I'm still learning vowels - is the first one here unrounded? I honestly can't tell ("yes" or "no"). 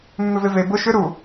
no